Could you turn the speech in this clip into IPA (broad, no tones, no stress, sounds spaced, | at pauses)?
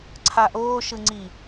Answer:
ǀʰ a ʔ oː ʃ ɯ ŋ͡ǀ i